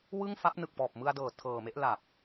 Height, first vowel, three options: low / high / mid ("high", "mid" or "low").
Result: high